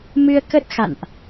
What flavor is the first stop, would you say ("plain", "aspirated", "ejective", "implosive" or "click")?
plain